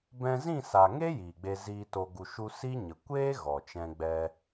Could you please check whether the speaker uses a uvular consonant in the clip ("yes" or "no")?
no